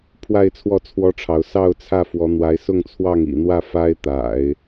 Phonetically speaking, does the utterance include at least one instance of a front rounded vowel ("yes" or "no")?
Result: no